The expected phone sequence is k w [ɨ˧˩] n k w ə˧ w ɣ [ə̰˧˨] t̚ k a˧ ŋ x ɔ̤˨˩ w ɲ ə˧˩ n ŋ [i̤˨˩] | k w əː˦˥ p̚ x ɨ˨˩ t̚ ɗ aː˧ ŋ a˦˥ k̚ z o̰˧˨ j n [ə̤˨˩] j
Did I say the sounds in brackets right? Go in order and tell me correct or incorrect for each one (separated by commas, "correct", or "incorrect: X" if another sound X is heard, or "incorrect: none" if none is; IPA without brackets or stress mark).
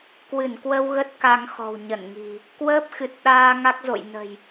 correct, incorrect: ə˦˥, correct, correct